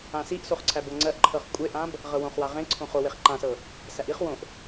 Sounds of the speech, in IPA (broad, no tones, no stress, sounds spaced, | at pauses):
ã s i ʔ s o χ ǀʰ æ b ɤ ŋ͡ǀ ɜ ʔ ǃʰ ɤ χ kʷʼ e ʔ ã b | ʁ ɤ w õ χ w a ʁ ẽ ǀʰ õ χ o w e χ ǃ ã s ɤ | s æ ʔ i χ w õ ʔ